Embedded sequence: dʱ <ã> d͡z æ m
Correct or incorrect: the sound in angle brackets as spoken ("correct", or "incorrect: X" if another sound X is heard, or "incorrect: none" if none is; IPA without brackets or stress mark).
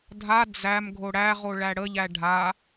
incorrect: a